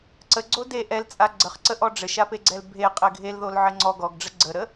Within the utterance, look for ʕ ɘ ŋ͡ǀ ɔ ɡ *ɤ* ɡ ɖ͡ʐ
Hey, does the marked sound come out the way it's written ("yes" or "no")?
no